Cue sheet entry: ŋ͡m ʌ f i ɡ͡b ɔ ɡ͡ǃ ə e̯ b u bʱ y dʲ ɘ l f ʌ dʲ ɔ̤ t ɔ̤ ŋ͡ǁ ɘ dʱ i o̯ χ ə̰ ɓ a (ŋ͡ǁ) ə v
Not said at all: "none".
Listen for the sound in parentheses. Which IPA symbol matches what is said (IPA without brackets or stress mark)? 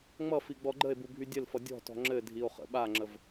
ŋ͡ǁ